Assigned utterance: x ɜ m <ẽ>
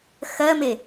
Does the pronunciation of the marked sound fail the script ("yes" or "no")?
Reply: yes